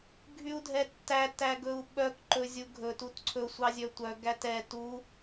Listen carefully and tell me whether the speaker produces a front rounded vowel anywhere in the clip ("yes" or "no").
yes